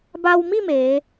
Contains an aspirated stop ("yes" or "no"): no